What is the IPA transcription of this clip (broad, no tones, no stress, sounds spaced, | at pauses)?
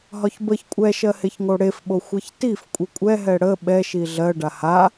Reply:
ɦ ɒ ç b ə ç kʷʼ ɛ ʃ ɜ h e ç ŋ o ɽ e f ɓ o xʷ ɛ ç t i f kʷʼ i kʷʼ ɛ ɦ ɛ ɽ ə ɓ ɛ ʃ i ɮ ɜ ɖ a h a